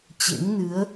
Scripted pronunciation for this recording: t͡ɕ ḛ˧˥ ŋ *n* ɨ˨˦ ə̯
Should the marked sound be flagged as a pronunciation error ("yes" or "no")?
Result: no